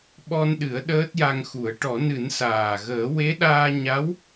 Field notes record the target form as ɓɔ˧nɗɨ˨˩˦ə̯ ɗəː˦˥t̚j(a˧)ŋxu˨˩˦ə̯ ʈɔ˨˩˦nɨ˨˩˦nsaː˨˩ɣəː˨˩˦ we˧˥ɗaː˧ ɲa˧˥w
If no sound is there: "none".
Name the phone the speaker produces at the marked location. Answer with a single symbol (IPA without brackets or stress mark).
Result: a˧